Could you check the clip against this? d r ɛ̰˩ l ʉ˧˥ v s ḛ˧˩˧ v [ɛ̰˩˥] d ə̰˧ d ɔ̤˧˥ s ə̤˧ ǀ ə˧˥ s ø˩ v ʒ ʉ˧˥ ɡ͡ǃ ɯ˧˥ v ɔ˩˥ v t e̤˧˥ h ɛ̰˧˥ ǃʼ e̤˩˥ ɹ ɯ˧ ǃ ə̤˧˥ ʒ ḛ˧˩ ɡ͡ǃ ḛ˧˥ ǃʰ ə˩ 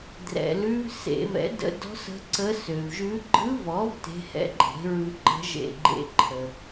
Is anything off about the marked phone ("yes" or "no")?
no